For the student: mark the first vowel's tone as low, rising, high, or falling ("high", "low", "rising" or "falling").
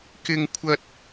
high